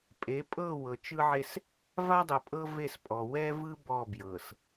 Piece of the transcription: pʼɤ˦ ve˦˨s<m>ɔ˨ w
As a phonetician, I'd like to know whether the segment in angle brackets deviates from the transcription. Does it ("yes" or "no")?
yes